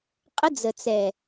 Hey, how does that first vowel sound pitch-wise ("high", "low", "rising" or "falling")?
high